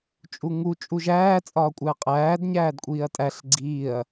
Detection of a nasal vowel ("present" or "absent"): absent